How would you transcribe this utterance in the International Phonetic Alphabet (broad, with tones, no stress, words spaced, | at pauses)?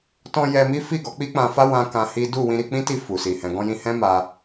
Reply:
tɔ̃˧ jɛ˧mi˦fi˦˨ ɡɔ˨˦k͡pi˦k͡pã˧fa˦ wã˦kã˧hi˦ du˦˨ wĩ˧ɾi˧ k͡pĩ˦ti˦˨ fu˨si˨ hɛ̃˨ɡɔ̃˧jĩ˧hɛ̃˦ ma˧